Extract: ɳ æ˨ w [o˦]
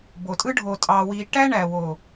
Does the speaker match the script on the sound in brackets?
no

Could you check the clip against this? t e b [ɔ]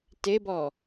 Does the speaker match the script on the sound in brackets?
yes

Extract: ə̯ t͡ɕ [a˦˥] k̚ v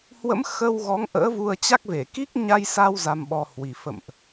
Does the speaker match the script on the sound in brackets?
yes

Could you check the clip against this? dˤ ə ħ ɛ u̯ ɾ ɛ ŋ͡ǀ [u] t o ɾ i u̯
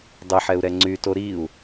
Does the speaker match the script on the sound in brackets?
no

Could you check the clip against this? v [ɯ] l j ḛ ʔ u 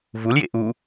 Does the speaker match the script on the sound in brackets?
no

